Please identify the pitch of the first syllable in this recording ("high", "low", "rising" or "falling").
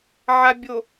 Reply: low